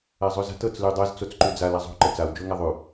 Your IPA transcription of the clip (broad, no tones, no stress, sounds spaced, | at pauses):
a zˤ ʉ z a̤ t ɤ t͡s l ʉ dˤ ɤ z t͡s o t͡s ǃ ʉ d͡z a l a zˤ o̤ ǃ ə t͡s a w d͡ʒ o ŋ a ðˤ ʉ